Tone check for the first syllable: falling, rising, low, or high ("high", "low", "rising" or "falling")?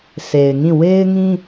low